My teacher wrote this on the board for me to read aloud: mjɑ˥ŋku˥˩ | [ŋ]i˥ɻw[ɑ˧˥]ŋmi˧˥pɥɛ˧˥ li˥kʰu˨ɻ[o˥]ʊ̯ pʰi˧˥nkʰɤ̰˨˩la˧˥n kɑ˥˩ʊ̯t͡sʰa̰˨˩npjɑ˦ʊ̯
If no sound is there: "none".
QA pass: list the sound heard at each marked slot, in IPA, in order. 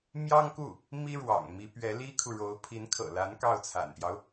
m, ɑ̰˨˩, o˧˥

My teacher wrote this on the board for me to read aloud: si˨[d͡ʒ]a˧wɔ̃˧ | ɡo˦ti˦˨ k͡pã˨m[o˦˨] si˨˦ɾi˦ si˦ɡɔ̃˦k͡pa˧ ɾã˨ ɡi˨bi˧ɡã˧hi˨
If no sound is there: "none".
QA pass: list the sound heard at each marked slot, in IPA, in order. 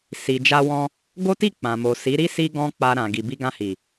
d͡ʒ, o˨

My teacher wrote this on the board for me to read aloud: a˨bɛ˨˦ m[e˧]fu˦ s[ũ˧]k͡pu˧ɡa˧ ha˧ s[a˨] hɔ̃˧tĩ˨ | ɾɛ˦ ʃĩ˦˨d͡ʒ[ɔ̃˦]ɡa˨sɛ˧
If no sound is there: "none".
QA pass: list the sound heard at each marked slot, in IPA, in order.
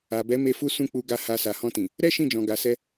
e˧, ũ˦˨, a˨, ɔ̃˨

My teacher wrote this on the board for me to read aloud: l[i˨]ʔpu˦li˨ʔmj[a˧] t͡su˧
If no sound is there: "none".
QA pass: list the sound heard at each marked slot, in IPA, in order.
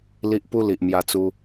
i˦, a˧

